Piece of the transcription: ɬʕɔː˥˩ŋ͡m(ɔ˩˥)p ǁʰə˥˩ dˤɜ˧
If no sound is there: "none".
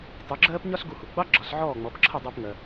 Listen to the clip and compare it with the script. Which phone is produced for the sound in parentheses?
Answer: ɔ˩˥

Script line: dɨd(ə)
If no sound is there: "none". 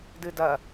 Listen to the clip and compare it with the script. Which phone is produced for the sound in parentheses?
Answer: ɐ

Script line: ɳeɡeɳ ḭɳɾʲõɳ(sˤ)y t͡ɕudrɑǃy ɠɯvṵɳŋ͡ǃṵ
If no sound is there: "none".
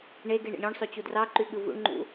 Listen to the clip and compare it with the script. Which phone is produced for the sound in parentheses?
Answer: sˤ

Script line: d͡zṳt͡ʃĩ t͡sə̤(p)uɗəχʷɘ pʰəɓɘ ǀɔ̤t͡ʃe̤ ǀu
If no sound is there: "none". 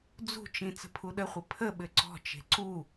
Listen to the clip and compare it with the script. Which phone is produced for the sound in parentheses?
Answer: pʰ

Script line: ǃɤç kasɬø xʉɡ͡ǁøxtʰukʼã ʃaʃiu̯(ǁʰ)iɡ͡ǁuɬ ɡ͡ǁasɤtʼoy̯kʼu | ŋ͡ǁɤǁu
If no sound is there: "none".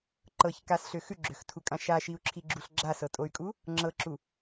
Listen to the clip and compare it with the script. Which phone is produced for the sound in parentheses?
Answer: ǁʰ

